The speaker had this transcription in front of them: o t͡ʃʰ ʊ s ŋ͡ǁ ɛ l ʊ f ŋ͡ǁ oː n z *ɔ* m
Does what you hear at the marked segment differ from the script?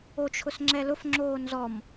no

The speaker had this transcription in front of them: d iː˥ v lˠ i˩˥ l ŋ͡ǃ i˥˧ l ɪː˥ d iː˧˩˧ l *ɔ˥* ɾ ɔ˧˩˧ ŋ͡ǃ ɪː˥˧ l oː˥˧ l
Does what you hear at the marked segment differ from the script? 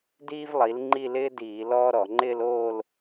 yes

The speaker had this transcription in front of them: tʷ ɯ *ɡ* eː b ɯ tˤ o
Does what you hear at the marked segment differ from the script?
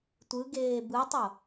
no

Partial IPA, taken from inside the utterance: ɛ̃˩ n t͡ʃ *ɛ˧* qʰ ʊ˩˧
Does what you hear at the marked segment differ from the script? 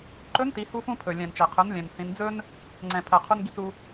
yes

